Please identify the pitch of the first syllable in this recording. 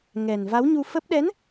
low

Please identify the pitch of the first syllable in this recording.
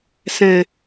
falling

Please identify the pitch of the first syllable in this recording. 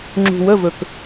low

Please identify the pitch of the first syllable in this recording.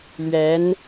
rising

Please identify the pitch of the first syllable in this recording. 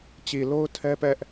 low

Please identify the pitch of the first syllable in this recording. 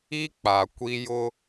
high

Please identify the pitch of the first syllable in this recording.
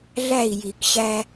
falling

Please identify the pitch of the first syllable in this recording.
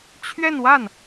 falling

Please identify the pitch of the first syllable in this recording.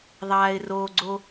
low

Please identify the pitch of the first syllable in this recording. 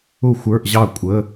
falling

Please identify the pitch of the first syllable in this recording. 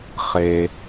low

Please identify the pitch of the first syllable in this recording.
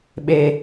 high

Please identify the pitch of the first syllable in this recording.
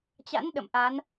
rising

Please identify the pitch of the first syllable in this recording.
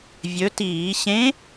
rising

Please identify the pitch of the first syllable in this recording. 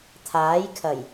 rising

